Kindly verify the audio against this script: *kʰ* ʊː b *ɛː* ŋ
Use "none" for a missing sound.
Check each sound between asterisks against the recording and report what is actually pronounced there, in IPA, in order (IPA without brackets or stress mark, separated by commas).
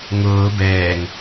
ŋ, ɛː